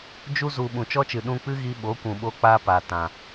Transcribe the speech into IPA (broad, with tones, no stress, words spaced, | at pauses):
d͡ʒu˧zu˨ ɓũ˨t͡ʃɔ˦t͡ʃɨ˨ ɗũ˧k͡pɨ˦ɣi˧ ɓo˨˦kʷũ˨ ɓo˧k͡pa˧ pa˨ tã˨